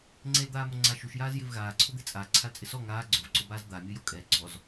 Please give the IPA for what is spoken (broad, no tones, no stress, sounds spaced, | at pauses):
ŋ͡ǀ e l d̪ aː m o ŋ͡ǀ a ʃ u ʃ j aː z j ɪ v ɣ aː ǀʰ ʊ d̪ e t͡sʼ a ǀʰ a l t͡sʼ ɪ s ɔ ŋ aː ɡ͡ǀ ʊ v ǀ o b aː z d̪ a mʲ ʊ j o kʼ ɛ ɡ͡ǀ ɔ z